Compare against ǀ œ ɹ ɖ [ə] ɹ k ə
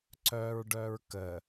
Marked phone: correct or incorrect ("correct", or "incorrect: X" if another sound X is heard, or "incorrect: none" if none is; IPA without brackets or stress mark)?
incorrect: œ